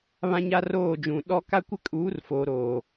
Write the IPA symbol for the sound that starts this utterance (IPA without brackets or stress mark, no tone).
β